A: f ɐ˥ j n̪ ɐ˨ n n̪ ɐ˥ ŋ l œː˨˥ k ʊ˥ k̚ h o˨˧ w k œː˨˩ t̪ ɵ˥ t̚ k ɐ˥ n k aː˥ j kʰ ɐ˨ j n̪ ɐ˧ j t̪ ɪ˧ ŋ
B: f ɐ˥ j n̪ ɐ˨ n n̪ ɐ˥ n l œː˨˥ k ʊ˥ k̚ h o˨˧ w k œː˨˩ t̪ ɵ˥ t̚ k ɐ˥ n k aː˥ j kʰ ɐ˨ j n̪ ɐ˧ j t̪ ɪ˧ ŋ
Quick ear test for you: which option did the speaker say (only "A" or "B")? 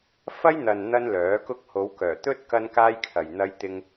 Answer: B